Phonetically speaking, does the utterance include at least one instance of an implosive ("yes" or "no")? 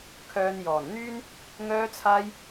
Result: no